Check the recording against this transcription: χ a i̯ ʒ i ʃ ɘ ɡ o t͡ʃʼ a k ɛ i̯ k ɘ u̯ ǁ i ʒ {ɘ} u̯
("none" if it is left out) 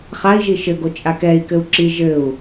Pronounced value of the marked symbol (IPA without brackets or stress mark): ɘ